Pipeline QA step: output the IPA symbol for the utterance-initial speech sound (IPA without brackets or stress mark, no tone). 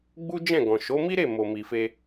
ɡ͡b